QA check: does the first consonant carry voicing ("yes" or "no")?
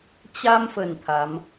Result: no